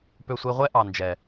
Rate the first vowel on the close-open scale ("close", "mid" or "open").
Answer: mid